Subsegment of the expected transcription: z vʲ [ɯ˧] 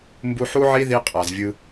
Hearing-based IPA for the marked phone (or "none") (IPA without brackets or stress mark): ɯ˧